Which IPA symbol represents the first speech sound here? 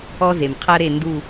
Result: ɔ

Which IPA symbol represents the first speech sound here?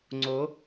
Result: ŋ͡ǀ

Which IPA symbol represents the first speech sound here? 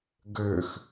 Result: ɡ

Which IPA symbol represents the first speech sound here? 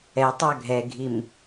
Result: ɛ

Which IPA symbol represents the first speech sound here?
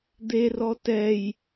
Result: d̪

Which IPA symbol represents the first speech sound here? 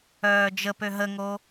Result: œː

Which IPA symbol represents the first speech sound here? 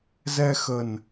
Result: z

